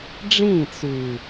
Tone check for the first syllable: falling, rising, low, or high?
falling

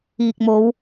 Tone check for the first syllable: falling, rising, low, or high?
low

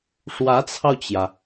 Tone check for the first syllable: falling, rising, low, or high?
rising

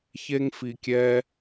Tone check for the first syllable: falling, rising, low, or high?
high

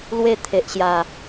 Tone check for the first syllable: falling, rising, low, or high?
falling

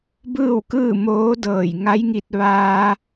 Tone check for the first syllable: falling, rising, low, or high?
falling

